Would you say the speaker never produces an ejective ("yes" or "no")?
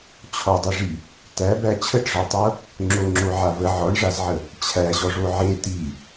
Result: yes